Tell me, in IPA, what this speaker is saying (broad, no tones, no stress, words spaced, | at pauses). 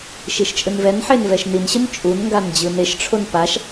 ʃiʃt͡ʃʼɯnvɛnħen vɛʃninɕɯn t͡ʃʼunŋɡan d͡ʑɯneʃʈ͡ʂʰon paʃ